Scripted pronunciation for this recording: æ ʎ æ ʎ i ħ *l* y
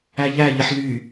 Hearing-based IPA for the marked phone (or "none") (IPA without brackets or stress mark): l